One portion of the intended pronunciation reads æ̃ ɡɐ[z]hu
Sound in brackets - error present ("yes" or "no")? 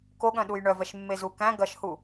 yes